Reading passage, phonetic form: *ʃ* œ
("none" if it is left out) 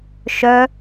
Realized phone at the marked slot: ʃ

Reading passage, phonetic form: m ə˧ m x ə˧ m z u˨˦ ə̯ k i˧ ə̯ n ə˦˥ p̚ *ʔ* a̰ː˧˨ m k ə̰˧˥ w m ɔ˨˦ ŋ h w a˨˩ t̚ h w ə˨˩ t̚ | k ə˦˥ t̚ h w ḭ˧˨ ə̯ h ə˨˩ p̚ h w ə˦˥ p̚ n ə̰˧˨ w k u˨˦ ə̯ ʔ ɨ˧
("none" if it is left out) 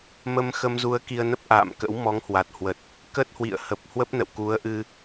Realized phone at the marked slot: ʔ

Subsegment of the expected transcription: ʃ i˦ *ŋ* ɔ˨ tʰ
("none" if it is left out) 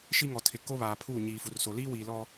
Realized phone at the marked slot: ŋ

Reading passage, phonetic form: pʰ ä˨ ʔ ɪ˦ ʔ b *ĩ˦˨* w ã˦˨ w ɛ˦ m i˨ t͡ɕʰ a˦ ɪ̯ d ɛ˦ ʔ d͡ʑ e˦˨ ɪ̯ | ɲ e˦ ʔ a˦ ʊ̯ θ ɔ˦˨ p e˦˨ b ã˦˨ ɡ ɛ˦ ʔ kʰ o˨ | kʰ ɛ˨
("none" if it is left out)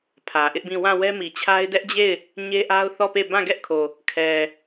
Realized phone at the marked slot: ĩ˦˨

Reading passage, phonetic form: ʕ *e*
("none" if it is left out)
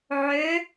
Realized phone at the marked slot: ø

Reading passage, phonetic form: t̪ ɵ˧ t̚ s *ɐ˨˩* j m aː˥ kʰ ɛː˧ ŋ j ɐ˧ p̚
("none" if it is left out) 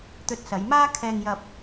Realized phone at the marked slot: ɐ˨˧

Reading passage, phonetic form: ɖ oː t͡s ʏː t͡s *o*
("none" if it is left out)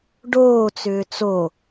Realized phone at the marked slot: o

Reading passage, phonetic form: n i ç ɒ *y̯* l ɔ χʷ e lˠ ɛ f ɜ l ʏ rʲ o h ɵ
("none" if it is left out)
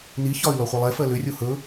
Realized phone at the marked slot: y̯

